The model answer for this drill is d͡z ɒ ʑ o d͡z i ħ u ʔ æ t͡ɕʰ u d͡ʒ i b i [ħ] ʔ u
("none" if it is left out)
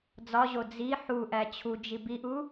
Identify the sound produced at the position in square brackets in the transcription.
none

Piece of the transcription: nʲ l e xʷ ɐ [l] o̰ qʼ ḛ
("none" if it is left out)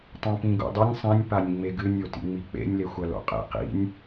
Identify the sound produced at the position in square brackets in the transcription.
l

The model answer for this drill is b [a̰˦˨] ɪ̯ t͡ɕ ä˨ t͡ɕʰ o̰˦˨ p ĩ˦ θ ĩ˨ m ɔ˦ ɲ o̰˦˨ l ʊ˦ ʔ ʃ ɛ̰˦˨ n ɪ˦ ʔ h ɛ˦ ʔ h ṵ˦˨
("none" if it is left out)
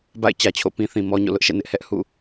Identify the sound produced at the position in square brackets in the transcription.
a̰˦˨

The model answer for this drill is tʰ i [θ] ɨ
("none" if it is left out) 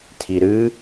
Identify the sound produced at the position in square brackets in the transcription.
ɾ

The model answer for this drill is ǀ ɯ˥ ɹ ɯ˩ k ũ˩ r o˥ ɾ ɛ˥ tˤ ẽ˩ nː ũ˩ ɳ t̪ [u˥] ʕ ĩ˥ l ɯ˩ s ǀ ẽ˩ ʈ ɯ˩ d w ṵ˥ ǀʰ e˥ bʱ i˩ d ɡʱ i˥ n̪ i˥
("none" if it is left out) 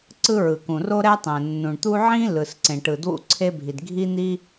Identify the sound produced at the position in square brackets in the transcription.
u˥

